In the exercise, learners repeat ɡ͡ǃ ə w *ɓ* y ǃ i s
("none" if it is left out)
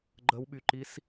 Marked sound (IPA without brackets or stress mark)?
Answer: ɓ